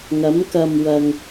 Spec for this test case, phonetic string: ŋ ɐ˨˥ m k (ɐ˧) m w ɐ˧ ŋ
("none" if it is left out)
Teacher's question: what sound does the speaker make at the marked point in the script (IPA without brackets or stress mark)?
ɐ˧